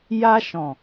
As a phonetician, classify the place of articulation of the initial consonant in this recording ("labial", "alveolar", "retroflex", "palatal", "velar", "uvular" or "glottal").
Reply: palatal